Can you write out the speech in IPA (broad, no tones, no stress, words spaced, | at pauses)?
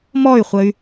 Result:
mɔy̯χʷəy̯